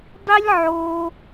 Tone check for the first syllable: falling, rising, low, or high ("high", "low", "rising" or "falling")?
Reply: high